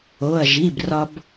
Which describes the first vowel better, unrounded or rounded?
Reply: rounded